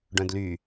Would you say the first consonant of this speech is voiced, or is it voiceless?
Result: voiced